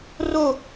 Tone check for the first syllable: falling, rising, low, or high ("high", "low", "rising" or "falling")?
falling